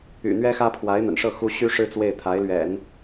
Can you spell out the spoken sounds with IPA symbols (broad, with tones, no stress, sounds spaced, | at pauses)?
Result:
y̰˨˩ n̪ ɥ ɛ˥ x ä˥ pʰ w a˧˥ ɪ̯ n̪ ə̰˨˩ n ʂ ɤ˥˩ x u˥ ɕ y˥ ʂ ɻ̩˥˧ t͡s w e˥˩ ɪ̯ t̪ʰ a˧˥ ɪ̯ l ɥ ɛ̰˨˩˦ n